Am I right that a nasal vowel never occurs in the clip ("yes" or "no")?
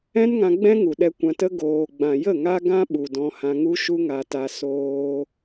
no